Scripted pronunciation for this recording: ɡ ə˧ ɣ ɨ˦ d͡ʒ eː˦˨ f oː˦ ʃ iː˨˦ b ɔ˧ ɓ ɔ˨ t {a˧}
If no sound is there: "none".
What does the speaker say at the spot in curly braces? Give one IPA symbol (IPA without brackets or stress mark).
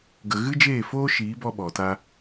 a˧